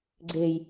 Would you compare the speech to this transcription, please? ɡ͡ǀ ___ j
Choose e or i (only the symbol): e